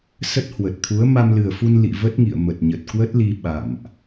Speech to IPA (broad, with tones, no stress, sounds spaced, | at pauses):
s ə˦˥ t̚ h w ə˨˩ t̚ t̪ʰ u˨˦ ə̯ m a˧ m l ɨ˨˩ ə̯ f u˧ n l ḭ˧˨ v ə˦˥ t̚ ŋ ḭ˧˨ ə̯ m ə˨˩ t̚ ɲ ə˨˩ t̚ k w ə˦˥ t̚ l i˧ ɓ a̰˧˨ m ʔ